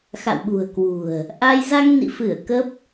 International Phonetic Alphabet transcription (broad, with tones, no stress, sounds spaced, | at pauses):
x a̰˧˨ w ɓ ṳ˨˩ ə̯ k w ṳ˨˩ ə̯ | ʔ a˧ j z a˧ ŋ n ḭ˧˨ f ɨ˧˩ ə̯ k ə˦˥ p̚